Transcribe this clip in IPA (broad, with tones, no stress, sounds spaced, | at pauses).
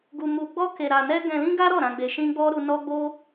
ɡ u˧ m u˧ ɡ͡b ɔ˦ k e˧ ɾ a˧ n ɛ˦ ɡ ɛ̃˧ l ĩ˦ ɡ a˦ ɾ ɔ˦˨ ɾ ã˧ ɡ͡b e˧ ʃ ĩ˦ ɡ͡b ɔ˦ ɾ u˦ n ɔ˦ ɡ͡b o˦